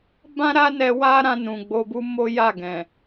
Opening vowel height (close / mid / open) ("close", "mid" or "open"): open